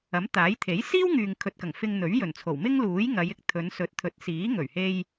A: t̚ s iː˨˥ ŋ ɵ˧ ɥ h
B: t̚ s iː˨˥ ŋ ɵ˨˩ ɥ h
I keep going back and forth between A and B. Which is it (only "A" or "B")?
B